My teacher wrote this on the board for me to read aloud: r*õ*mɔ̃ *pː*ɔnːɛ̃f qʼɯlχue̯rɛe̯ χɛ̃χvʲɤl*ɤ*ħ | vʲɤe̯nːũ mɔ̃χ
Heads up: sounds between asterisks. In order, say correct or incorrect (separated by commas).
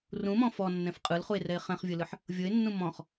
incorrect, incorrect, incorrect